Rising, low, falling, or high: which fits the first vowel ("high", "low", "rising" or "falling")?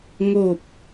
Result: falling